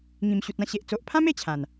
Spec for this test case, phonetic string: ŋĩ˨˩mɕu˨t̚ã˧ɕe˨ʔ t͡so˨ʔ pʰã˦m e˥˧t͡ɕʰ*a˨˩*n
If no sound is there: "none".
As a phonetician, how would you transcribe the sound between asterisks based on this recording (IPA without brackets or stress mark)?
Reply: ã˨˩